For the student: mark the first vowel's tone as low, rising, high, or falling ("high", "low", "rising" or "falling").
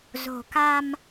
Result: low